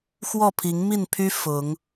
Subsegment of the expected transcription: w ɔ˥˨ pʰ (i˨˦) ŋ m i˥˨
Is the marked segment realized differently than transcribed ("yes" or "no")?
no